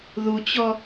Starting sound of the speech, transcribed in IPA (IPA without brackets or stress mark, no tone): ð